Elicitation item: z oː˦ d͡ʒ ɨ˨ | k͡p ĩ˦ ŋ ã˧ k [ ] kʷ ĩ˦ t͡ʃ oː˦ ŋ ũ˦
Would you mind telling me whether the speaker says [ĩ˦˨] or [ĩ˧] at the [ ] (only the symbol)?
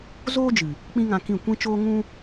ĩ˦˨